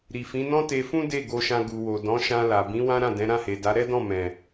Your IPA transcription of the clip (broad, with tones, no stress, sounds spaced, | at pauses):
ɾ i˨ f ĩ˨˦ n ɔ̃˦ t e˧ f ũ˦ d e˦˨ ɡ o˧ ʃ ã˧ ɡ u˨ w o˨ d ɔ̃˨˦ ʃ ã˧ l a˨ b ĩ˨˦ w ã˦ ɾ ã˦˨ d ɛ̃˨˦ ɾ ã˦˨ h e˨ d a˨˦ ɾ ɛ˦ d ɔ̃˦˨ m ɛ̃˨